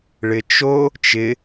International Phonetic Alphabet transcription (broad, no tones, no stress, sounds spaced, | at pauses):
ɭ ɪ t͡ʃ o | t͡ʃ ɪ